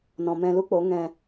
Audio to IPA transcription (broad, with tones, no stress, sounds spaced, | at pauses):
n ɔ̃˨ m ɛ̃˧ l u˦ k͡p o˨˦ ŋ ɛ̃˧